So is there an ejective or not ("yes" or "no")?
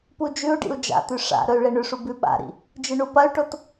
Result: no